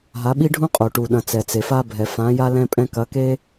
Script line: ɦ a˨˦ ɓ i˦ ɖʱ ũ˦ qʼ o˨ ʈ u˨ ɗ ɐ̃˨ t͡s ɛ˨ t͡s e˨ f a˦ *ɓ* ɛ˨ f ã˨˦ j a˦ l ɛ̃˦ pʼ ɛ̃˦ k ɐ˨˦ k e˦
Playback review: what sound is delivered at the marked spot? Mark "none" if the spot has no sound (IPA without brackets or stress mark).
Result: bʱ